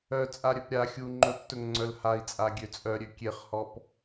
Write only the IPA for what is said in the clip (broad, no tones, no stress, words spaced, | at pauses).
œt͡sʼa ɾʲœpɾʲaxʲu ŋ͡ǃɵptɵŋŋ͡ǀœl hai̯t͡sʼa ɡʲøt͡sʼœɾʲø kʲeχhɔp